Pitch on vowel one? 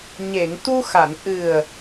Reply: low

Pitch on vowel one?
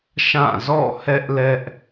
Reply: falling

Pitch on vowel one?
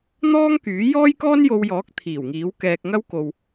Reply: high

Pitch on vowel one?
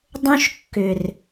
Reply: high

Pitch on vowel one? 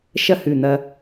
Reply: falling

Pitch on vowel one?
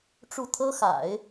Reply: falling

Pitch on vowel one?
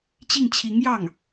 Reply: falling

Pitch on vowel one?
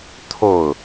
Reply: falling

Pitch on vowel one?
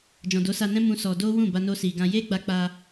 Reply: low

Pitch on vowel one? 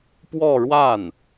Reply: falling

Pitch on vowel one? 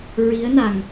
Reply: rising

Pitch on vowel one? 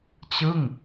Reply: falling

